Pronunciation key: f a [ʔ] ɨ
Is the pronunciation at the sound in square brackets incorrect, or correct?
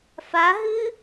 incorrect